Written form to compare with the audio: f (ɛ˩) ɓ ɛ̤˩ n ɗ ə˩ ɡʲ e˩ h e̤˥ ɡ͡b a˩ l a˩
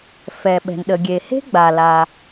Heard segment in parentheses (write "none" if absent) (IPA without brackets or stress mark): ɛ˩